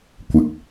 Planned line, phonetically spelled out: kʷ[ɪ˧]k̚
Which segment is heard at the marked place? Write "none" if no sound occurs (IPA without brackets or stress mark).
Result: ɪ˧